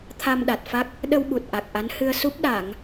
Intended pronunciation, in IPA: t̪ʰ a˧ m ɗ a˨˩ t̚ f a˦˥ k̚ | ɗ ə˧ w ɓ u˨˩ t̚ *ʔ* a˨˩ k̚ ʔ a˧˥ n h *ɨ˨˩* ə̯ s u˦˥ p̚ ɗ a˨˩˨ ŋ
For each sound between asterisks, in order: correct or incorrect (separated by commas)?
correct, incorrect